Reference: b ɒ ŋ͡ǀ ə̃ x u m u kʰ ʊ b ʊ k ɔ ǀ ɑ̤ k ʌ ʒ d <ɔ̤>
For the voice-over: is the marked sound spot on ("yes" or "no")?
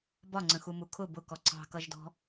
yes